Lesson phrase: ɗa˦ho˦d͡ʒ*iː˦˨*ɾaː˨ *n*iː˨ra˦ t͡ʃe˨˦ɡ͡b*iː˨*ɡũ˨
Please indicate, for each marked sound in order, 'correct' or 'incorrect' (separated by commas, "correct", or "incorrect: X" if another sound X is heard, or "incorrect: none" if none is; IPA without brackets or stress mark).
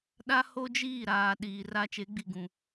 correct, incorrect: ɗ, incorrect: i˨